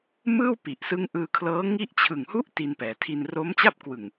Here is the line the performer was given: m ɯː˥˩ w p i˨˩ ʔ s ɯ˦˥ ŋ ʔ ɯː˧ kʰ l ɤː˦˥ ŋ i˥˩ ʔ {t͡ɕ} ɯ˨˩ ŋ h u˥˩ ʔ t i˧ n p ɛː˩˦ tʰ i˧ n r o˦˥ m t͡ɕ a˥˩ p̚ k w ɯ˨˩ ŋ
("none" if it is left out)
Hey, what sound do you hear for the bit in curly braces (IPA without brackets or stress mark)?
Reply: t͡ɕʰ